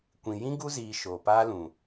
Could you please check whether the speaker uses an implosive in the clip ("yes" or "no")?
no